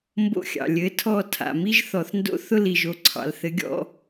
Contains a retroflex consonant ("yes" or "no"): no